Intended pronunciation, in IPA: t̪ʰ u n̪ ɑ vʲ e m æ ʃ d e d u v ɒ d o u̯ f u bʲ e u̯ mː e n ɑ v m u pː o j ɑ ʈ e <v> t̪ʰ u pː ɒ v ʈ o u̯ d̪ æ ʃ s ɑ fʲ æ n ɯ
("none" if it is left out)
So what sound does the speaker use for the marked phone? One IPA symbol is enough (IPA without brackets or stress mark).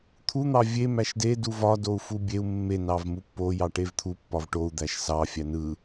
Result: v